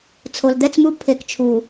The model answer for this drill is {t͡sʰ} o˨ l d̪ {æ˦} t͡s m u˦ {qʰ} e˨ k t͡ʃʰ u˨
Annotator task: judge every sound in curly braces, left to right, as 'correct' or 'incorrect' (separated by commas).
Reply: correct, incorrect, incorrect